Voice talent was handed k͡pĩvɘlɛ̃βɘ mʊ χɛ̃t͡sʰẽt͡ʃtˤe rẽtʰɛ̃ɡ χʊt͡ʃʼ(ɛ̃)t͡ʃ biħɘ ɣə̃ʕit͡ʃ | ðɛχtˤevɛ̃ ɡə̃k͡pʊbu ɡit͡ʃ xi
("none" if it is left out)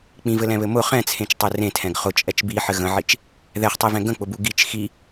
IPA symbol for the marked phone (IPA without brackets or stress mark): ɛ